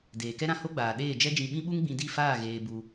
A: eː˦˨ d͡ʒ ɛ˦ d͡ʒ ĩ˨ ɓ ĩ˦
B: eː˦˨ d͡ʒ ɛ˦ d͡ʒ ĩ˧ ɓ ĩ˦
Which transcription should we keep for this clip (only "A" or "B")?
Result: B